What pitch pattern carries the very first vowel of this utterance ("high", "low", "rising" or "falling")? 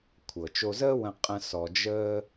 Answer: low